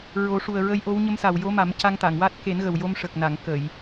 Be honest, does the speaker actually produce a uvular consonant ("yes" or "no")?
no